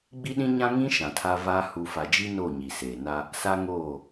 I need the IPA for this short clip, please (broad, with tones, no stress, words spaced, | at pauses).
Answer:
ɡ͡bi˦ɗĩ˦ɲã˦ ŋĩ˦ ʃã˨tʰa˦vaː˦ hu˨fa˨d͡ʒi˦ noː˦˨ɲi˨seː˨na˦ | sa˦ŋoː˦˨